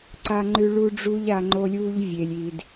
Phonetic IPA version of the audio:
ǀa˦ŋ͡ǃʉ˦ ɭu˦ɖ͡ʐu˦ʎa˧ ŋ͡ǃo˧lʲuː˧ʎ vʲe˨lʲi˨d

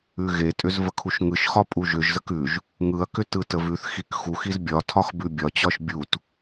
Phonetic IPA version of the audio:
ʉɣetʼʏz vəkʰuʃŋɯʃ xɒpʼuʒʏʒzək ʉʒ | ŋɯɐ̯kʏtɯ təvʉθ xikxux izbʲɒ tʰɒxbʉbʲɒt͡ɕɒʃ bʲut

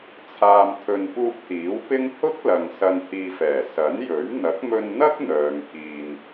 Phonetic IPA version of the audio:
t͡sʰaː˨mt̪ʰɵ˨n puː˧p̚t̪iː˨˥wpɪ˥ŋ hʊ˥k̚lɐ˨ŋ sɐ˧nhiː˧fɛː˨˩ sɐ˨˥njɵ˨˥ɥ n̪ɐ˨˥k̚mɵ˧nn̪ɐ˥k̚ n̪œː˨ŋ kiː˨n

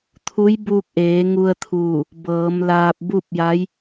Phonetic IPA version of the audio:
t̪ʰu˧˥j buː˧k̚ʔeː˩˧ ŋu˧ə̯t̪ʰuː˧˩ | bɤː˩˧mlaː˧p̚ bu˥˨p̚ja˧˥j

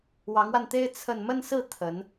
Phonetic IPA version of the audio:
wɑ˧˥ŋwa˧nt̪e˥ɪ̯ t͡sʰə˥˧n mə˥˧nsɹ̩˥˩ t̪ʰə˧˥n

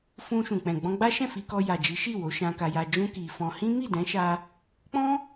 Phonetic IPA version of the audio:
fũ˧ʃũ˨k͡pɛ̃˨ ɡ͡bɔ̃˧ɡ͡ba˦ʃɛ̃˦˨fi˧ kɔ˧ ja˨d͡ʒi˨˦ ʃi˦˨wo˨˦ ʃã˧ka˧ja˧ d͡ʒũ˦ ki˧ fɔ̃˧ hĩ˦mi˦˨dɛ̃˨˦ʃa˧ | k͡pɔ̃˦

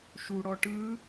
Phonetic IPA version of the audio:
ʃuɽɔ ʈɯ

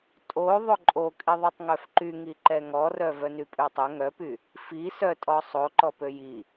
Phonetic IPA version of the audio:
tʼo ðˤoǃʼokʼiðˤitˤ ŋœfǃyŋi ǃɛŋɔrœvœ nypʼøtˤø ŋœpy | fi sœtʼɔ sˤoǃɔpø ji

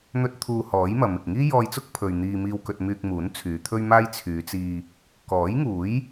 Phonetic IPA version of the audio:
n̪ɵ˧t̚t̪ʰuː˨ hɔː˨˥j mɐ˨˧mɪ˨k̚ ŋiː˥jɔː˧jt͡sʊ˥k̚ pʰɵ˨ɥ n̪iː˧ miː˧wkɵ˧t̚myː˧k̚ muː˨˥nt͡sʰyː˨˧t̪ʰɵ˥ɥmaː˥j t͡sʰyː˨˧t͡siː˧ | kɔː˨˥jŋuː˨˥j

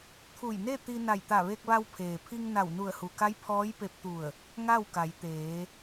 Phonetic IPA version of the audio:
t̪ʰu˧˩jne˥˨t̪i˧ na˧˩jt̪a˧˩ʋe˧k̚ʋa˧w pʰeː˩pʰi˧ŋ na˧˩wnu˧˩ə̯hu˩ka˧˥j pʰɔː˧˥jpe˧p̚t̪u˧˩ə̯ | ŋa˥˨wka˩˧jt̪eː˩˧

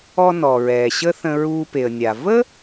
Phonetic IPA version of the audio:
ɔ˧ nɔ˩ɹɛː˩ɕə˧ θə̃˧ɹuː˧pe˩ə̯nʲa˩ və˥

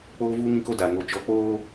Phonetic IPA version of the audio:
k͡poː˦vuː˦ŋĩ˦ko˦ da˨ŋo˨ t͡ʃɔ˨˦k͡poː˦

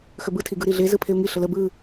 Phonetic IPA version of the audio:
xəbɯtʰi ɡɯɾiɮe zɯpʰeu̯ŋi ɬələ bɯ

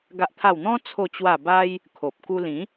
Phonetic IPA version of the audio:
ɡa˦ʔt̪ʰa˥˧w n̪ɔ̃˦ t͡sʰo˥˧t͡ɕwa˥˧ ba˦j | kʰo˨p̚ ku˧lĩ˨˦

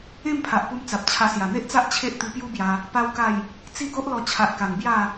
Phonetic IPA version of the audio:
ẽ˥˧mpʰa˨ʔpu˧m t͡sa˨p̚t͡ɕʰa˧ sja˨˩n̪e˦ʔt͡sa˦ʔ t͡ɕʰe˦ʔt̪i˧pju˦bja˧ | pa˦wka˥˧j | t͡si˦ɡo˦ʔ lɔ˧t͡ɕʰa˨ʔka˨˩ŋ bja˥˧

